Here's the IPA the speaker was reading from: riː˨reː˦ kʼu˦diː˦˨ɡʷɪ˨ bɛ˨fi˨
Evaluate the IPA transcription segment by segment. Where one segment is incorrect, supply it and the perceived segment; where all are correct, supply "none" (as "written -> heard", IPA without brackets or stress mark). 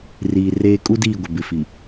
ɛ˨ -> ɪ˨